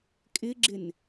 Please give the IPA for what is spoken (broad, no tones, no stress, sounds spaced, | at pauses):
kʼ ɪ ɡ͡ǁ ɪ n